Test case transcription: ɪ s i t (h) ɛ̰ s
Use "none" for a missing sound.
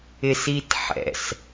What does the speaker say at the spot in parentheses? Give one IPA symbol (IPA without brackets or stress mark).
ħ